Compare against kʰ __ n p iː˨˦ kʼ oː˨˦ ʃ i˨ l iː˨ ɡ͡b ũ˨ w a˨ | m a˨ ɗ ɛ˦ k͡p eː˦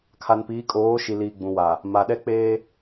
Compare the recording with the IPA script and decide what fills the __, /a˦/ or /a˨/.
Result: a˨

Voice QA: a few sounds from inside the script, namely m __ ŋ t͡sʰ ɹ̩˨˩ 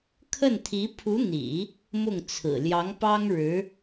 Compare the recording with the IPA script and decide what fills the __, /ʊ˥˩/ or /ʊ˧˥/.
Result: ʊ˥˩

